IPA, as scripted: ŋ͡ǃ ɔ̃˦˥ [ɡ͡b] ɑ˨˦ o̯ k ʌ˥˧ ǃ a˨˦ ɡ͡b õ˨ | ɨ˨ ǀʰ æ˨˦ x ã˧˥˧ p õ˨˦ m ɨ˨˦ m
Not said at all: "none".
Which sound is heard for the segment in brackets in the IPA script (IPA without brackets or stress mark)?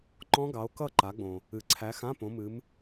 ɡ